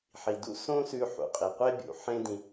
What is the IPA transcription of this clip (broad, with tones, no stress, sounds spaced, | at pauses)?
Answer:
ħ i˩ d ṵ˥ s õ˥ s ʉ˧ ħ ṵ˩ qʼ i˩ qʷ e˥ bʲ ṵ˩ ħ ẽ˧ d ĩ˩